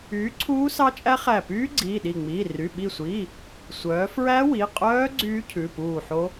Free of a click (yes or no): no